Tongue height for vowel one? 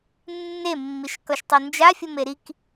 mid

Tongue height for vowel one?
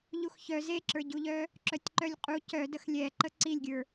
high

